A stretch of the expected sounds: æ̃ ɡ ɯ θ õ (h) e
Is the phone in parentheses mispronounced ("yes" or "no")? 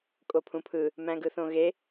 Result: yes